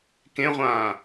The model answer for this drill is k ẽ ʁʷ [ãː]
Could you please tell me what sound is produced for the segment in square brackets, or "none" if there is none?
ãː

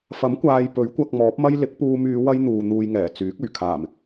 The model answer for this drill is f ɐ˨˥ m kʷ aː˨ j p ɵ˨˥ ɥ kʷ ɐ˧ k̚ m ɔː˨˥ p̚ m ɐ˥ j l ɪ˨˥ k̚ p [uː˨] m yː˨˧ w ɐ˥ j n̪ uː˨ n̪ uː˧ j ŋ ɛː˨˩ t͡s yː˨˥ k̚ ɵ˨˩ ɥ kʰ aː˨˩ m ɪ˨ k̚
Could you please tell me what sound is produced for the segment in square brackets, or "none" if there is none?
uː˧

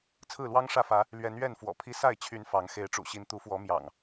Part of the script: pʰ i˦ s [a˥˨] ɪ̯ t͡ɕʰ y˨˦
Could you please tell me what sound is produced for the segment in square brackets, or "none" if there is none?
a˥˨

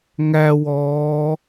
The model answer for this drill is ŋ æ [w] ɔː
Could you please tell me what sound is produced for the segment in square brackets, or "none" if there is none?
w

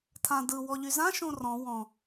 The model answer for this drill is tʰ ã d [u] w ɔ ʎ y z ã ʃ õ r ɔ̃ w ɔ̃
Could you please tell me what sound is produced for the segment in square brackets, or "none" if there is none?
ɯ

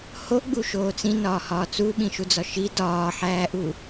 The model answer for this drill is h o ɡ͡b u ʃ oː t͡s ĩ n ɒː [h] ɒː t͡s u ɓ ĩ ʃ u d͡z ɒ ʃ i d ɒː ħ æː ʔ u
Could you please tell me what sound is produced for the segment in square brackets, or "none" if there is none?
h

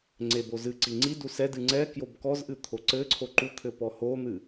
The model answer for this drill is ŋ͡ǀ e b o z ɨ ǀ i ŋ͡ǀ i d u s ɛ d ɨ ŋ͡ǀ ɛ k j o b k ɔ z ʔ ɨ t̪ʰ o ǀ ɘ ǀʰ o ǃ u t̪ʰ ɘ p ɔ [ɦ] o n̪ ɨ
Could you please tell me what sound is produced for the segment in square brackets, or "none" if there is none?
h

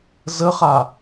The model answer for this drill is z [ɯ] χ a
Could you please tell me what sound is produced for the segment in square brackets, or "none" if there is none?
ə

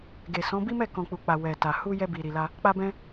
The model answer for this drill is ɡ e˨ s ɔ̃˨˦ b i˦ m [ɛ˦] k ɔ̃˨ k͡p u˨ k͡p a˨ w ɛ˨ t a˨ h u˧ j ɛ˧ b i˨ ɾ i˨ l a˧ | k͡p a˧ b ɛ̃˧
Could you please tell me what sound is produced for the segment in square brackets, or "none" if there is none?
ɛ˦˨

